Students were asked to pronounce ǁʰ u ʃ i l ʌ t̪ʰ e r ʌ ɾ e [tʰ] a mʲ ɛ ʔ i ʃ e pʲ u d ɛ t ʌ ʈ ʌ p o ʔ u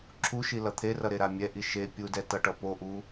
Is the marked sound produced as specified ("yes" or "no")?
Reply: no